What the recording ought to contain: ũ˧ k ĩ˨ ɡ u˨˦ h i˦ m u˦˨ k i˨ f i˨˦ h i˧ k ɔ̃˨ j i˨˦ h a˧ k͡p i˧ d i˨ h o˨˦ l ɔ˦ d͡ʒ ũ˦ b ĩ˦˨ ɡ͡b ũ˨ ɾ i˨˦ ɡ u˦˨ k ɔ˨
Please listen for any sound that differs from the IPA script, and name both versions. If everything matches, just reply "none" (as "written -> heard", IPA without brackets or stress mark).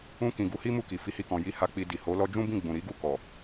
none